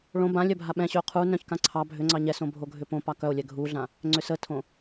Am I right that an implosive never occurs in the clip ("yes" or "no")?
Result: no